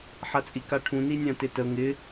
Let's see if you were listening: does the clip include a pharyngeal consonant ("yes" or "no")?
yes